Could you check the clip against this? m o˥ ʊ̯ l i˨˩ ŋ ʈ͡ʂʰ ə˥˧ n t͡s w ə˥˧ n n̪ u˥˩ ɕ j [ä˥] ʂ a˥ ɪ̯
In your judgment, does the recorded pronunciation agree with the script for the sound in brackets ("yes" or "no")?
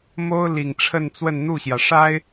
no